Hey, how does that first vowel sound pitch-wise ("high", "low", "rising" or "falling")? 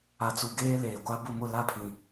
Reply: low